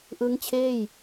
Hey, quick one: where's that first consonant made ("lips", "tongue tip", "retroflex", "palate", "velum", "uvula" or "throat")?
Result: throat